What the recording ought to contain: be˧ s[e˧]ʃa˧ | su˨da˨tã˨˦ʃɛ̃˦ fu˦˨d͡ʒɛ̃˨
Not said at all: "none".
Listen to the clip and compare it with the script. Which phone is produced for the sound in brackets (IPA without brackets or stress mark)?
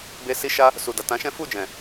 i˧